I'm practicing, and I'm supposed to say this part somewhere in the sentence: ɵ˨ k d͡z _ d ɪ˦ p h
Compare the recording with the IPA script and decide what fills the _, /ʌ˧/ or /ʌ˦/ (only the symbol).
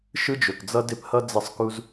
ʌ˦